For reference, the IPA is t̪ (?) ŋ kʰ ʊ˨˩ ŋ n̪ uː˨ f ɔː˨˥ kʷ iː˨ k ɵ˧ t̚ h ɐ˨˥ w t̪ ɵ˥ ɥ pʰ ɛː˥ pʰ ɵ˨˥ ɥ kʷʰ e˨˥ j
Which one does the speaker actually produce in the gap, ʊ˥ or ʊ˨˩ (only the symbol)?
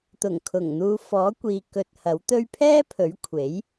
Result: ʊ˨˩